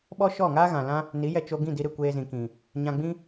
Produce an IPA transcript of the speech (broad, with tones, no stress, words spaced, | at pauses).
ɓɔ˦ʃɔ˦˨ŋaː˦ ɣã˨lã˦ | ni˨˦jɛ˧t͡ʃo˧ ɡĩ˦˨di˧ɾɨ˨ kʷeː˧zĩ˨kĩ˨ | ɲã˧ɡ͡bĩ˦